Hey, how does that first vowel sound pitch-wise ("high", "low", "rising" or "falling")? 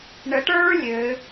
rising